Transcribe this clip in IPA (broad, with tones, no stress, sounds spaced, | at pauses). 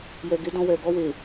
j ɛ˨ ɡ e˨˦ d ɔ̃˧ w ɛ˨ ɡ ɔ˧ w e˨